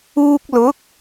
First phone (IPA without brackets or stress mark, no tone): uː